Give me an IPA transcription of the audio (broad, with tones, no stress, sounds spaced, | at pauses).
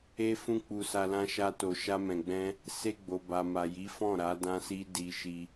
e˦ f ũ˦ k͡p u˧ s a˧ l ã˦ ʃ a˦ t o˧ ʃ a˦ m ɛ̃˧ ɡ͡b ɛ̃˦ | s e˧ ɡ͡b o˨ b a˨ m a˨ j i˨˦ f ɔ̃˦˨ ɾ a˨˦ d ã˦ s i˦ d i˧ ʃ i˧